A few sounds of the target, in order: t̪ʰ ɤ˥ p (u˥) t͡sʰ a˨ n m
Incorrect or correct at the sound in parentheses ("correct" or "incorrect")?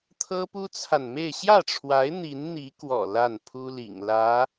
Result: correct